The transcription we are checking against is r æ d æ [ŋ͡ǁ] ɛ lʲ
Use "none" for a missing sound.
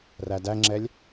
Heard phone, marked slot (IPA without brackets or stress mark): ŋ͡ǁ